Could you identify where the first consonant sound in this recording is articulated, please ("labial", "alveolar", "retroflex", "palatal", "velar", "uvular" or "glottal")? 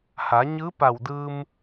glottal